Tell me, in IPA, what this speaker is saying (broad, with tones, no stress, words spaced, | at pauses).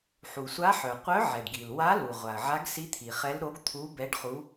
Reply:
ħu˩sʷa˧˥ħœ˩ qʷœ˧˥ʕɛ˩ɖɡi˩lwa˧˥ lu˩ʁʷa˩ə̯ ʕa˧˥ɡsi˧˥t̪ʰi˩χɛ˧˥l ɾo˧˥ɡt̪ʰu˧˥ bɛ˧˥ɖχu˧˥